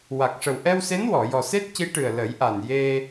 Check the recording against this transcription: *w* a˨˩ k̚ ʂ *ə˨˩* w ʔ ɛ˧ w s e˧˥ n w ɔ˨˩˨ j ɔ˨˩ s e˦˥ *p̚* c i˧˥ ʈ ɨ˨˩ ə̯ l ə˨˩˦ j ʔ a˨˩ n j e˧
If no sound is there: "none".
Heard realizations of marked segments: w, ə˨˩, t̚

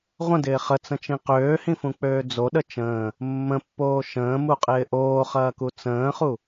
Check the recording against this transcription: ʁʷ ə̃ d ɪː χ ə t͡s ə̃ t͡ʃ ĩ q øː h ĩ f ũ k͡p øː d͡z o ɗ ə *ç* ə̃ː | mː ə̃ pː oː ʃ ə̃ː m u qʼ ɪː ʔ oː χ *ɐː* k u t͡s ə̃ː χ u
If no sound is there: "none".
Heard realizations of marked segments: t͡ʃ, ɐː

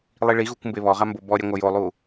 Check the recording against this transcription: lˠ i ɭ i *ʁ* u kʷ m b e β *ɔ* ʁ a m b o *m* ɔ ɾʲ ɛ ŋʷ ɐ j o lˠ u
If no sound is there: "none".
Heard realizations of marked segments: ɣ, ɔ, b

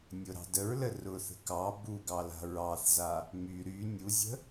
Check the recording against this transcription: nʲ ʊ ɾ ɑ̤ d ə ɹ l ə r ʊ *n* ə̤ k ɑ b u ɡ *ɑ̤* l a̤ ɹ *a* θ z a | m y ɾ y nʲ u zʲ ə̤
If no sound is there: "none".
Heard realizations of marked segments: θ, ɑ, ɑ

